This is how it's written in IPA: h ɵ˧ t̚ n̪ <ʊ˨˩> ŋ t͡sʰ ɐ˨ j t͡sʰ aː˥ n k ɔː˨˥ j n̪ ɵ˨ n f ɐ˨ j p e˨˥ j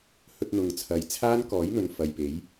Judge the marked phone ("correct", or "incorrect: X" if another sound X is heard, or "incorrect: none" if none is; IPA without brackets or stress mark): incorrect: ʊ˨